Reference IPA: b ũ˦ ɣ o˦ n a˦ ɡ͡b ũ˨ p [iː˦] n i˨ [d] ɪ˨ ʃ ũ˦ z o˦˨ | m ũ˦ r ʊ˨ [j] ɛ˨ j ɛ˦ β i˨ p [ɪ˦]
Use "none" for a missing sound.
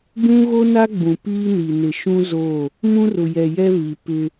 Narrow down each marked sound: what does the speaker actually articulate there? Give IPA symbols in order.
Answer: iː˦, n, j, ɪ˦

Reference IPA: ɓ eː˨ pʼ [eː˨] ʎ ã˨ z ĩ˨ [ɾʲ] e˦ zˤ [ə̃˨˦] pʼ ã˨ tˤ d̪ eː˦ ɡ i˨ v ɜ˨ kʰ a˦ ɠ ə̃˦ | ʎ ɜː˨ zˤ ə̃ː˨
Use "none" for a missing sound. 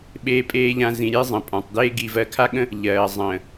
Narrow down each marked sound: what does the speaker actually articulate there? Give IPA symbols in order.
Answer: eː˨, ɾʲ, ə̃˨

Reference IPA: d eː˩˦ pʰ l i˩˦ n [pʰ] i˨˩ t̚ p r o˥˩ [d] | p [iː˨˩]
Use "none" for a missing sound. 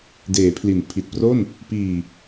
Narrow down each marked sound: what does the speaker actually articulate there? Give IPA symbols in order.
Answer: pʰ, n, iː˨˩

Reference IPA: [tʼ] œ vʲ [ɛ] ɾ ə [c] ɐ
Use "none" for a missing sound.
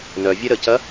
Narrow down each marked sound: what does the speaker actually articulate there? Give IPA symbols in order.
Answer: n, ɛ, c

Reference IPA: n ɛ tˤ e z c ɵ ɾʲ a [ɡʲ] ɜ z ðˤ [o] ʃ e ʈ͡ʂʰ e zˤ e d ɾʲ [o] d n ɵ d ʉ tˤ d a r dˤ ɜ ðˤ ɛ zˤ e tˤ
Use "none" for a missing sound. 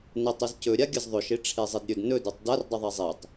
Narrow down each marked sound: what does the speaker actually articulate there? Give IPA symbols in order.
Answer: ɡʲ, ɵ, ɵ

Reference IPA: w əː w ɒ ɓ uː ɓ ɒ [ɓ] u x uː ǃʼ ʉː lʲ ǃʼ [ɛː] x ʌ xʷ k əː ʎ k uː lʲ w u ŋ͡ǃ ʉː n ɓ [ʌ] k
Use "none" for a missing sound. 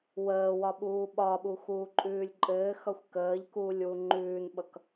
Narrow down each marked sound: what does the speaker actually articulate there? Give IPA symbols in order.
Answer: ɓ, ɘː, ʌ

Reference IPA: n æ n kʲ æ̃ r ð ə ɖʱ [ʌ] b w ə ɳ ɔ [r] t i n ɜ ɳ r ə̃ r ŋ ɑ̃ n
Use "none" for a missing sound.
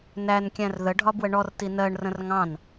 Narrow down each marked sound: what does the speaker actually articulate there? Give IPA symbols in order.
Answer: ɒ, r

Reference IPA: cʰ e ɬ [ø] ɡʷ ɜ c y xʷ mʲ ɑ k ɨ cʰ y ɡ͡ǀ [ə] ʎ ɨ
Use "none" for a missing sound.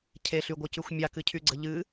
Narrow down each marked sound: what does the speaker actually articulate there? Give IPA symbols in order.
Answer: y, ə

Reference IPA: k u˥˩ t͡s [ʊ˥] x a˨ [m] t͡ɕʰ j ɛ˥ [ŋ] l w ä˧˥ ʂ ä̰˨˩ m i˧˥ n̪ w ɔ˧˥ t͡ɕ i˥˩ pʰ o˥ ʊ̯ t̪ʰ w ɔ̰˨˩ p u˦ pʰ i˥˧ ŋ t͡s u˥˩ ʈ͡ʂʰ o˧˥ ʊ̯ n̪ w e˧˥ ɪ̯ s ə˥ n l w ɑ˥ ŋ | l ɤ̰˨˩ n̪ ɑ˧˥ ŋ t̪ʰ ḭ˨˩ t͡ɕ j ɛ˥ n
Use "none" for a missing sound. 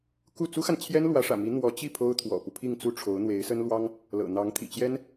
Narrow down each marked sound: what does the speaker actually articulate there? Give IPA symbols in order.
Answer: u˥, n, n

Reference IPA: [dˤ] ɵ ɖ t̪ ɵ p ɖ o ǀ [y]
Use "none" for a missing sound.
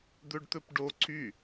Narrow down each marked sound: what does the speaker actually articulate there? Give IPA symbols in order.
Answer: d̪, y

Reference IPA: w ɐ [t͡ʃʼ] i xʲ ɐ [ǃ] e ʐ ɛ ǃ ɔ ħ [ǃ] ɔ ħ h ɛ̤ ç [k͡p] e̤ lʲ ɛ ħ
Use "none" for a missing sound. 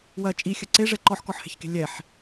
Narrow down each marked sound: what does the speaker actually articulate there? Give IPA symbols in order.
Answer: t͡ʃʼ, ǀ, k, k

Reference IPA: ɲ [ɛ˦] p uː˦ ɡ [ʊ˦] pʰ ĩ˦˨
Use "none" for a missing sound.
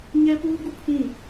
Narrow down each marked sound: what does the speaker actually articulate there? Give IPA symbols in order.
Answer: ɛ˦, u˦

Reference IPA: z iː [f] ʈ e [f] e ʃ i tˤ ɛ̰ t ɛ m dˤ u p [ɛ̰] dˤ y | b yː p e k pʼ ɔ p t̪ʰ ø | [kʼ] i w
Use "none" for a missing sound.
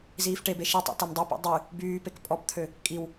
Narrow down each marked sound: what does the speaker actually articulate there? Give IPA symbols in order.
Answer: f, b, ɛ̰, kʼ

